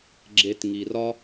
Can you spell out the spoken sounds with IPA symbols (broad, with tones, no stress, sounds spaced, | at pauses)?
ɡ͡ǁ e˧ t ŋ i˨ r ɒ˦